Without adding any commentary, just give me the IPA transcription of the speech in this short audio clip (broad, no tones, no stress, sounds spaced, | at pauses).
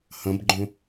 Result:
h ɐ̃ b ɡ͡ǃ õ